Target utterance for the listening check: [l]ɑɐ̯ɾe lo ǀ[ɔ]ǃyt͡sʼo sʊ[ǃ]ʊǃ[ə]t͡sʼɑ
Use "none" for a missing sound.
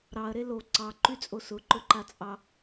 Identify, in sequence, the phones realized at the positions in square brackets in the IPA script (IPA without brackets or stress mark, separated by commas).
ɾ, ɑ, ǃ, a